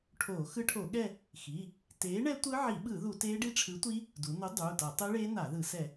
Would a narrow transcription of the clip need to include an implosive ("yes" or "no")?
yes